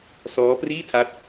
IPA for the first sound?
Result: s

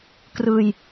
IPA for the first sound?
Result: k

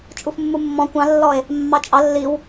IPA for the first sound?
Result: t͡ʃʼ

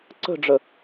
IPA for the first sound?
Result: ǀ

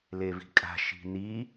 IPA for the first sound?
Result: l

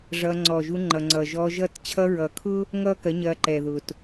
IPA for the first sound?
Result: ʐ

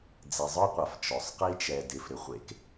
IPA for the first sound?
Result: d͡z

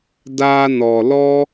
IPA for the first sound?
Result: d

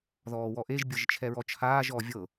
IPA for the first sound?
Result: ð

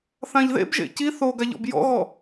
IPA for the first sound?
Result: θ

